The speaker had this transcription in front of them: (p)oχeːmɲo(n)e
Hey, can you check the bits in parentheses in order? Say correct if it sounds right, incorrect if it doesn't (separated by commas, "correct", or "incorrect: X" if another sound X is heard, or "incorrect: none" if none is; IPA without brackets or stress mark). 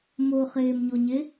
incorrect: m, incorrect: ɲ